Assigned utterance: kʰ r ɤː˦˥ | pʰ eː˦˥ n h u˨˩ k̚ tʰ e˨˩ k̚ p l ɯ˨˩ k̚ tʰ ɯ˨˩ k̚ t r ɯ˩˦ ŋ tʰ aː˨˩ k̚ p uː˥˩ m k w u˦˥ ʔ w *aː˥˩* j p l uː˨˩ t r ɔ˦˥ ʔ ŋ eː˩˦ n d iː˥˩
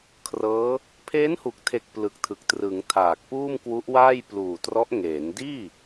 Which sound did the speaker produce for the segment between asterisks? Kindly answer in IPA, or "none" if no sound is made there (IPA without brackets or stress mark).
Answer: aː˥˩